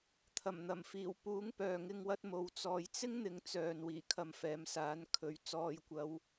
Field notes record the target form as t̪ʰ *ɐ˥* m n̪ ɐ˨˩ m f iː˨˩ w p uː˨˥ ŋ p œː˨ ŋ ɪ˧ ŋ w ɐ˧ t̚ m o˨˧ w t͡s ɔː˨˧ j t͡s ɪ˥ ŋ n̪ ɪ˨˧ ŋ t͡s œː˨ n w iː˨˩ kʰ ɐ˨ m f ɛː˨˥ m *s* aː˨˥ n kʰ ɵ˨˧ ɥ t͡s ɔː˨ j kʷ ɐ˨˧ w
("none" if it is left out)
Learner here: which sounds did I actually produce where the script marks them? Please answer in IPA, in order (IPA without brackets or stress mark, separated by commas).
ɐ˨˩, s